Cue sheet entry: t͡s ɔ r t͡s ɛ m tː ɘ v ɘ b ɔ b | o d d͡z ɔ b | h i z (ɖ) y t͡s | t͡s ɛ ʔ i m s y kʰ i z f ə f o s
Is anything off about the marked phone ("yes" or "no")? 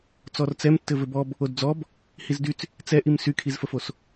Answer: yes